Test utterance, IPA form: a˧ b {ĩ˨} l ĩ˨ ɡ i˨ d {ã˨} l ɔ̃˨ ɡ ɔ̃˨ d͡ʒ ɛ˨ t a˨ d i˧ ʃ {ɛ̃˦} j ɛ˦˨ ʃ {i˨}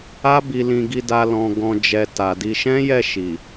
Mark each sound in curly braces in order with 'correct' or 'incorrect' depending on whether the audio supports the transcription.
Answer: incorrect, incorrect, correct, correct

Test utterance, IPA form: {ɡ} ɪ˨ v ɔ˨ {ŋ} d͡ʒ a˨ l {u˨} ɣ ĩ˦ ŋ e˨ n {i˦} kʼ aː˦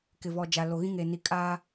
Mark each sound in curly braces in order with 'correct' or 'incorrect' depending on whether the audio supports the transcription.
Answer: incorrect, incorrect, incorrect, incorrect

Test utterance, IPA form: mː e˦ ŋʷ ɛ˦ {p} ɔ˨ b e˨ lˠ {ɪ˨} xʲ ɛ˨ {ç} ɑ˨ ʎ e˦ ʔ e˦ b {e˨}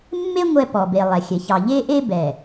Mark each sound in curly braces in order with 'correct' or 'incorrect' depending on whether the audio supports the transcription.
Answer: correct, incorrect, correct, incorrect

